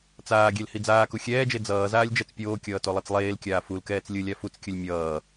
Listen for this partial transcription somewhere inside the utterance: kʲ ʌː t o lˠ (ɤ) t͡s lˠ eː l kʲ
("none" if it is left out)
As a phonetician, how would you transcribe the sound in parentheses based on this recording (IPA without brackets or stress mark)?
ɯ